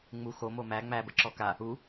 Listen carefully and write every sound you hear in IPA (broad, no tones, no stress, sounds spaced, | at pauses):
ŋ͡m u x o m o m æ ŋ͡m æ b ə ǁ ɔ k a | u